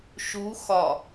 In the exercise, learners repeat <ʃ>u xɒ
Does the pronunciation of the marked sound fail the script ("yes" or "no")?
no